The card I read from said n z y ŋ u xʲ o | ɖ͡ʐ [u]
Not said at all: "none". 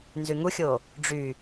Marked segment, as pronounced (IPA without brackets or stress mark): y